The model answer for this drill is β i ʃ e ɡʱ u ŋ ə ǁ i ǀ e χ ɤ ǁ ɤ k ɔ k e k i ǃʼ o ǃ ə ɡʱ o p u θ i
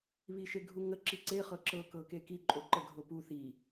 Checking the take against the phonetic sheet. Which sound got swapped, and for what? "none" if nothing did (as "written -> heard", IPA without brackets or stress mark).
ɔ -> ɤ